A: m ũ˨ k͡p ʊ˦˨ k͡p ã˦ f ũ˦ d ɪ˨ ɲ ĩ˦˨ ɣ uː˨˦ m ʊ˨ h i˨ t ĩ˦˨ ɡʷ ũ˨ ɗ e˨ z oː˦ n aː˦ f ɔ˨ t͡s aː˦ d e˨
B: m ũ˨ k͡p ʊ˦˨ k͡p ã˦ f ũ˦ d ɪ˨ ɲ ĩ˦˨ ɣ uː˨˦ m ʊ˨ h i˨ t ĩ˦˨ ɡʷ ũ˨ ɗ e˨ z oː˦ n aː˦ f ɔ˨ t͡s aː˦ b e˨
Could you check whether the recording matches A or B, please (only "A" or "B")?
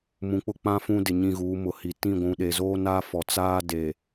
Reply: A